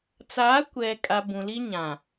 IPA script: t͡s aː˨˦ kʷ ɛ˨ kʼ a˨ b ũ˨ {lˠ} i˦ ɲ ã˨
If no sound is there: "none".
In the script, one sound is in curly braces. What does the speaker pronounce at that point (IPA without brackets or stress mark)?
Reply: l